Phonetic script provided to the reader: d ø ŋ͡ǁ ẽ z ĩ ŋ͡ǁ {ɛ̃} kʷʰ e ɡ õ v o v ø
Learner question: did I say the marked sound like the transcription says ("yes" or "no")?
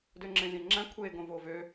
no